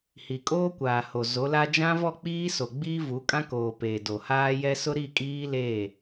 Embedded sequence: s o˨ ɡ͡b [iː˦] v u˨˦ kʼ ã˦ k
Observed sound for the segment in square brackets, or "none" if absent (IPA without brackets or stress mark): iː˦